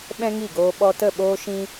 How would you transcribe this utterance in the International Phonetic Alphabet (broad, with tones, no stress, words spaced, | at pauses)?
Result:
ɓɛ̃˦ŋi˦˨ɡoː˧ ɓɔ˧tə˦˨ɓoː˦ ʃĩ˦